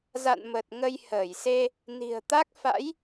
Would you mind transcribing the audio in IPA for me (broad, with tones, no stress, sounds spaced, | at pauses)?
z a̰˧˨ n m ə˨˩ t̚ ŋ ə˧ j h əː˧˩ j s e˧ | n i̤˨˩ ə̯ t̪ a˦˥ k̚ f a̰˧˥ j